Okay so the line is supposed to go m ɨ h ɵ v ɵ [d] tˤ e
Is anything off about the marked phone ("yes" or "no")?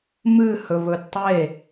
no